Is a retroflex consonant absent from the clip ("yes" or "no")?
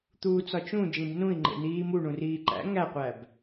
no